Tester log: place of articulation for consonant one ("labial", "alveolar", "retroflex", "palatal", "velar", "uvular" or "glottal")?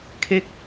velar